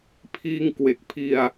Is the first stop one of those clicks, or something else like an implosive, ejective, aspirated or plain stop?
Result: aspirated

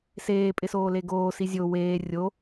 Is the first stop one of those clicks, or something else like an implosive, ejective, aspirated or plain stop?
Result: ejective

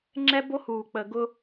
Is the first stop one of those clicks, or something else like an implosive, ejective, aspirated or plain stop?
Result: click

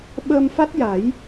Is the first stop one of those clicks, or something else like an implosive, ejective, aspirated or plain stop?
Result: implosive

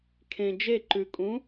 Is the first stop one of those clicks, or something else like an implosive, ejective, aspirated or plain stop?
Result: aspirated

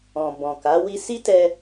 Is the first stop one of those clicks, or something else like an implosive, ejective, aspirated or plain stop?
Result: plain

